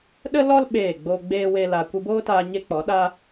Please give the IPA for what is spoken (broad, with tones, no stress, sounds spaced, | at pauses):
ɗ ə˦ l ɔ˦ l ɓ eː˦˨ ɡ͡b o˦ ɡ͡b eː˦ w e˦ l a˧ kʷ ɨ˧ b oː˦ t aː˧ ɲ e˦ k͡p ɔ˨˦ ɗ a˦